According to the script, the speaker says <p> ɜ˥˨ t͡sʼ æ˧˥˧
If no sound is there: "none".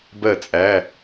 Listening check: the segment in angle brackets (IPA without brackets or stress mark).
b